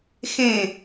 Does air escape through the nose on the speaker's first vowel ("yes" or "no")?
yes